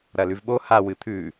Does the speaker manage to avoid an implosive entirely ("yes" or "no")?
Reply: no